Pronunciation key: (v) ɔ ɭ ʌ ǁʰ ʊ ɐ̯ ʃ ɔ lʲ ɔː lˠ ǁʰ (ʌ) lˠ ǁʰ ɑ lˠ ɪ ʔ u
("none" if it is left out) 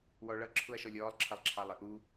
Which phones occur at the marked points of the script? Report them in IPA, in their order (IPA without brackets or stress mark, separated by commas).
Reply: w, ʌ